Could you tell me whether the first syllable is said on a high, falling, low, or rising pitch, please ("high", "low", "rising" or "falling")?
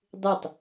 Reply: falling